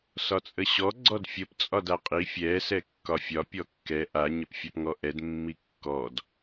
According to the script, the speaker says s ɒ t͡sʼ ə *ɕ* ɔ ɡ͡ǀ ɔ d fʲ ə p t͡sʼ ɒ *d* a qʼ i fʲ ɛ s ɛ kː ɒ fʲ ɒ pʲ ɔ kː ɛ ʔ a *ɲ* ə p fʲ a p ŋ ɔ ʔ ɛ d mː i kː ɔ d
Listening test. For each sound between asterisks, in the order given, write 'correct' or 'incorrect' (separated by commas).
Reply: correct, correct, correct